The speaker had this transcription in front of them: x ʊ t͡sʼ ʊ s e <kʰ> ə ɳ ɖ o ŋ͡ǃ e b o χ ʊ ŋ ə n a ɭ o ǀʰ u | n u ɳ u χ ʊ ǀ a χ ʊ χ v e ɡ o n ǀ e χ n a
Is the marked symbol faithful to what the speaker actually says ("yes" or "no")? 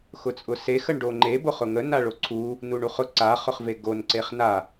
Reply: no